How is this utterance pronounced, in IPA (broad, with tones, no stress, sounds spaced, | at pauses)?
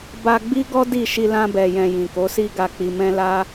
b a˧ ɡ͡b i˦ ɡ ɔ˦ d i˦˨ ʃ i˧ l ã˧ b ɛ˨ j ɛ̃˨ j ĩ˨ k o˨˦ s i˦ ɡ a˧ k͡p i˧ m ɛ̃˦ l a˦